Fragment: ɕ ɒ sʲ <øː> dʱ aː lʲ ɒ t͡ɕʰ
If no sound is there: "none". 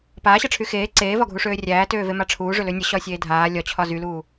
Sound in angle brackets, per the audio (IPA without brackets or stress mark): eː